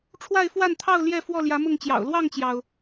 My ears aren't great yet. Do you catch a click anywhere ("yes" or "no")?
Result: no